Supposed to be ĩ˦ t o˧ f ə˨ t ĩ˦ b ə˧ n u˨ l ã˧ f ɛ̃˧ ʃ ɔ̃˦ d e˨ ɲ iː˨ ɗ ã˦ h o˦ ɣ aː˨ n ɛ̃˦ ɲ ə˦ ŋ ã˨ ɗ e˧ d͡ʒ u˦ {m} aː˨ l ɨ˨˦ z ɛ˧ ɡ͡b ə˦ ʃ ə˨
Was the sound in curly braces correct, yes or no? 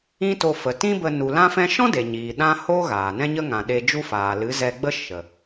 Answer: no